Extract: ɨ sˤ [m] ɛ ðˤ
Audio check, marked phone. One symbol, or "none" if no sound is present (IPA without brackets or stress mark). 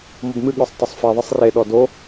f